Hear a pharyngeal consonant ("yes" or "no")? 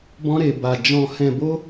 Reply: no